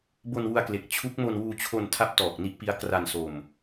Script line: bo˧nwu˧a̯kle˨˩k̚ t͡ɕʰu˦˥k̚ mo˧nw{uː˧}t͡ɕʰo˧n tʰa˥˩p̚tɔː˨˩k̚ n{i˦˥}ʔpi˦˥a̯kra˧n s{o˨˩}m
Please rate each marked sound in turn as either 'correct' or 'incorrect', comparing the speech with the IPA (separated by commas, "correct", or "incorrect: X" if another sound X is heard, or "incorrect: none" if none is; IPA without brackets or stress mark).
correct, correct, incorrect: o˧